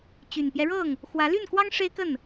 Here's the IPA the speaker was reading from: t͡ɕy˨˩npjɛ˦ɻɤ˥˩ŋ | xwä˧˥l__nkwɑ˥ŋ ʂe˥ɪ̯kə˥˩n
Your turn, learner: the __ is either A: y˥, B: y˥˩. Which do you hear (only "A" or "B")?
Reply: B